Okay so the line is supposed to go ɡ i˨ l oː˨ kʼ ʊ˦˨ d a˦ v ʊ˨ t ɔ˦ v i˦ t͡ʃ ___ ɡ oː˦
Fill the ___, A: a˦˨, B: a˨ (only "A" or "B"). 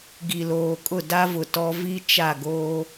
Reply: A